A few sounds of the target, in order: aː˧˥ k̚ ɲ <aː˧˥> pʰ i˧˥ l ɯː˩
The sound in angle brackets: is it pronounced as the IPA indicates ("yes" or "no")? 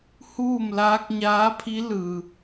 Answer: yes